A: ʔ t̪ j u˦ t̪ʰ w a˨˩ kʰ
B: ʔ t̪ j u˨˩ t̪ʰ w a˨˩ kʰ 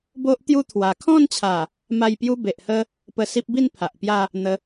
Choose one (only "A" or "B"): A